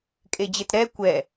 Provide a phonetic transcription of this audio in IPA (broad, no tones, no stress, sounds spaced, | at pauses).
kʼ e d͡ʑ e t ɾ ɛ kʷ ɛ